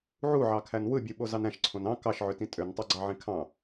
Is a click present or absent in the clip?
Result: present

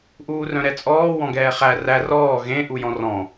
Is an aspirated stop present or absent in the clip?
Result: absent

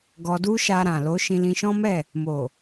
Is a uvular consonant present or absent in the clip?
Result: absent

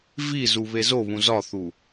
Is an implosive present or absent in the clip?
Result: absent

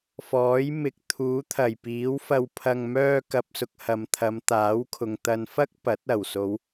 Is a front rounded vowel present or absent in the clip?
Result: present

